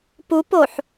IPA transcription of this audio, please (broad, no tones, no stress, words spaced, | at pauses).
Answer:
pupoħ